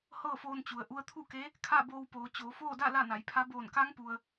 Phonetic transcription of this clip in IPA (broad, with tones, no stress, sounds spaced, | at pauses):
h ɤː˥˨ f oː˧ n t͡ɕ u˩ ə̯ ʔ u˧ ə̯ t̪ʰ u˥˨ k e˧˥ | kʰ a˥˨ b oː˧ w p oː˩˧ t͡ɕ oː˩˧ f oː˥˨ d a˥˨ l a˥˨ n a˩˧ j pʰ a˧˥ b oː˧˩ n k a˧˥ ŋ p u˩ ə̯